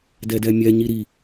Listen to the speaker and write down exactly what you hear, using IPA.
d ɛ d ɛ mʲ ɛ ɲ i ɾ i

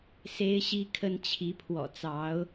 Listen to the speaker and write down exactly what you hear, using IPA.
s e˥ ɪ̯ ɕ i˥ kʰ ə˥ n t͡ɕʰ i˧˥ pʰ w ɔ̰˨˩ t͡s ɑ˧˥ ʊ̯

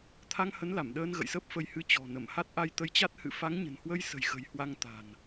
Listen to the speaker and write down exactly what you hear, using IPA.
t̪ʰ a˧ ŋ h ə˨˦ n l a˧˩ m ɗ əː˧ n ɣ ə̰˧˨ j s əː˦˥ p̚ f ə˧ j h ɨ˨˦ t͡ɕ ɔ̤˨˩ n ə˧˩ m h a˦˥ t̚ ʔ a˧ j t̪ ə˧ j t͡ɕ a˦˥ t̚ h ɨ̰˧˨ f a˨˦ ŋ ɲ ə̤˨˩ n h w ə˧ j s ə̤˨˩ j x ə̤˨˩ j h w a˧ ŋ t̪ a̤˨˩ n

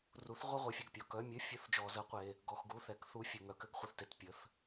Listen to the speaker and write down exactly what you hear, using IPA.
r u˩˥ θ ʁʷ ə˧˥˧ ʁʷ ə˩˥ fʲ ɘ˨ ɡ pʲ ɔ˨ k œ˧˥˧ mʲ ɘ˧˥˧ fʲ ʊ˧˥˧ θ d͡ʒ ɔ˨ z ə˧˥˧ qʷ e˨ | ɡ ɔ˨ x ɡ u˧˥˧ θ ɛ˩˥ k θ u˧˥˧ fʲ ʊ˨ ŋ œ˩˥ k ɘ˩˥ ɡ χʷ œ˨ θ t e˨ t pʲ ə˩˥ θ

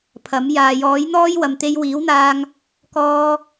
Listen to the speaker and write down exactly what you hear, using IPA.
pʰ ɐ˨˥ m j aː˨ j ɔː˨˥ j n̪ ɔː˥ j w ɐ˨ m t̪ e˧ j w iː˨˥ w n̪ aː˧ ŋ | k ɔː˧

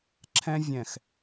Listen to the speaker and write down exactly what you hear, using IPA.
ǁʰ ɛ̃˧ vʲ ɛ̃˨ x

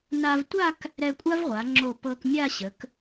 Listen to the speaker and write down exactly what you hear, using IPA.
n a˧ v tʷ a˥˧ k | ɾ ɛ˧ kʷʼ a˥ v ʁʷ a˩˧ ŋ͡ǁ o˧˩ p ɤ˧ k mʲ a˥˧ ɕ ə˩˧ k

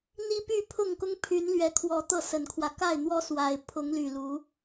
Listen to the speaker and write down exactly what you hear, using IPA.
n̪ i˦ p y˥˨ pʰ ʊ˥˨ ŋ k ʊ˦ ŋ pʰ y˨˦ n l ɥ ɛ˨˦ kʰ w ɔ˨˦ t̪ ɤ˥˨ s ə˨˩ n kʰ w ä˦ k a˥˨ ɪ̯ n̪ w ɔ˦ s w a˨˩ ɪ̯ pʰ ʊ˨˦ ŋ l y˨˩ l u˨˦

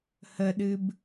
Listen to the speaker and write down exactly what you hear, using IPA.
h ə ɗ ɨ b

